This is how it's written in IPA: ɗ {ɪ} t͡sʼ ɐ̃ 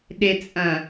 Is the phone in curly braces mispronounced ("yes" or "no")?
no